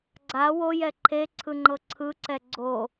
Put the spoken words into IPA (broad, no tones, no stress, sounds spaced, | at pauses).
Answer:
ɡ͡ǀ a w o j ɛ ǃʰ e ǀʰ ɯ ŋ͡ǃ ɤ ǀʰ ɯ ǀ ɛ ɡ͡ǀ o